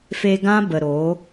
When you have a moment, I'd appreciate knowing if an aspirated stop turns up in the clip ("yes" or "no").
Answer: no